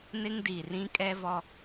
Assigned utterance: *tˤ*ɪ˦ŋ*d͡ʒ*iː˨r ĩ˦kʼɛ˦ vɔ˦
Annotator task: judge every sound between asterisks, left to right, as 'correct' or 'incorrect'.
incorrect: n, incorrect: d

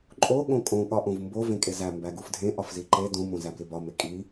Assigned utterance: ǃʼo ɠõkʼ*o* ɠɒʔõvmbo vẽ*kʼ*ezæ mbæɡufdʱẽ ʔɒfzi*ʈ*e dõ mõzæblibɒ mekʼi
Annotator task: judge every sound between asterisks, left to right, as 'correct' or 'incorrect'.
incorrect: õ, correct, incorrect: ǃ

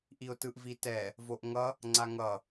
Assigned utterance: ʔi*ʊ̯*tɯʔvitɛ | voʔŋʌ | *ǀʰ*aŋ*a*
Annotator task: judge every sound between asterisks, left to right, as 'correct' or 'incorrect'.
correct, incorrect: ŋ͡ǀ, incorrect: ʌ

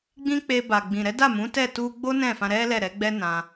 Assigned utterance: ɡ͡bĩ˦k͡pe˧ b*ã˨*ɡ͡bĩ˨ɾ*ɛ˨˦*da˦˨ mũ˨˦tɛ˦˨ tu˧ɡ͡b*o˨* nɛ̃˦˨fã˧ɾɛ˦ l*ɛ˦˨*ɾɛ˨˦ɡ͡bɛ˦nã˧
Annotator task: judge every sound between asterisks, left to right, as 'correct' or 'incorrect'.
incorrect: a˨, correct, incorrect: o˦, correct

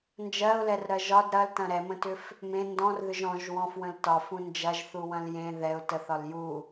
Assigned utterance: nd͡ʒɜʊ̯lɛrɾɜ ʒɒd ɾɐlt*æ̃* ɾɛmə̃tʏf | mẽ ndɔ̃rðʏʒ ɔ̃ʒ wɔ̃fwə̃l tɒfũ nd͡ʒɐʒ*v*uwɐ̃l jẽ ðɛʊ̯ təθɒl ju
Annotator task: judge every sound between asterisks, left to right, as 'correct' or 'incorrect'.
incorrect: ɐ̃, incorrect: θ

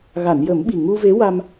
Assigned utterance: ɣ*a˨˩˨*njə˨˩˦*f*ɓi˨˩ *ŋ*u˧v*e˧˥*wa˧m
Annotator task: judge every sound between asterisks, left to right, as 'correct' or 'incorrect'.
correct, incorrect: m, correct, correct

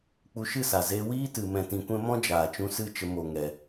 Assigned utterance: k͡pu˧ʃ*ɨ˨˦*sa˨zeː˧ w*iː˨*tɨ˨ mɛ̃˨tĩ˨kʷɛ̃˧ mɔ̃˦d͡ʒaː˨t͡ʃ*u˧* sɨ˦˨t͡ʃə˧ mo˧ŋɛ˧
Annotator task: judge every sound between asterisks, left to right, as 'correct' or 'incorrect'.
incorrect: ɨ˦˨, incorrect: iː˦, incorrect: ũ˧

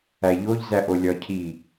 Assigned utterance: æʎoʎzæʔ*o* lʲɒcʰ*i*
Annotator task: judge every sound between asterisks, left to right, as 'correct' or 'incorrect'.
correct, correct

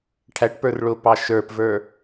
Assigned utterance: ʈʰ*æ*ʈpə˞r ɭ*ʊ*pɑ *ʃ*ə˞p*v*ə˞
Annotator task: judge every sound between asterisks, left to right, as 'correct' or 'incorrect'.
correct, correct, correct, correct

